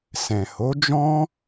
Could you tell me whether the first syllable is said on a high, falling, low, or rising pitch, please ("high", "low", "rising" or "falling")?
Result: low